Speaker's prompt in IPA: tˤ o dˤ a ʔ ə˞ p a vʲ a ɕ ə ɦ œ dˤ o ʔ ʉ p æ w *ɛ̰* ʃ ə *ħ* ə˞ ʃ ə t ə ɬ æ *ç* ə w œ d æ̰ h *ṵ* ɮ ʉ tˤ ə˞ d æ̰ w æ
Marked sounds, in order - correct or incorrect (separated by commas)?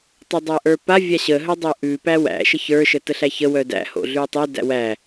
incorrect, incorrect, correct, incorrect